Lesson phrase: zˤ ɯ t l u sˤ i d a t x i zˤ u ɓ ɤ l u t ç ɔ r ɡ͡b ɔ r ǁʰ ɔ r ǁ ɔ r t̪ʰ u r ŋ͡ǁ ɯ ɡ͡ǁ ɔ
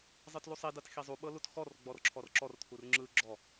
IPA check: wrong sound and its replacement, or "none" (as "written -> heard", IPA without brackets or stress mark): ç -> x